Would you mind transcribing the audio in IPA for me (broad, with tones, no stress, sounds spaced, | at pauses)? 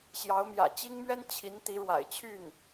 ɕ j ɑ˧˥ ʊ̯ m j ä̰˨˩ t͡ɕ i˥ ŋ m ɥ ɛ˥ n t͡ɕʰ i˧˥ n t̪ i˧˥ ɻ w a̰˨˩ ɪ̯ t͡ɕʰ y˥˩ n